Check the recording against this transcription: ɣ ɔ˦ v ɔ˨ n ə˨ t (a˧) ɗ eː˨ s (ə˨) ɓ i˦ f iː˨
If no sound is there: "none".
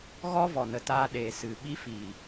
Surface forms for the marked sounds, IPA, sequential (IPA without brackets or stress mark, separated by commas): aː˧, ɨ˨